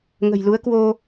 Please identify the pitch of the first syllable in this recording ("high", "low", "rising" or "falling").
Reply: low